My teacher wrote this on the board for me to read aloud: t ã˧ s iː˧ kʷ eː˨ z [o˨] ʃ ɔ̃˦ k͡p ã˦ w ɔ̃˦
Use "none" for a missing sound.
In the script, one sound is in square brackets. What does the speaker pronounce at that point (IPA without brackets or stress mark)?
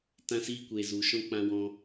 u˨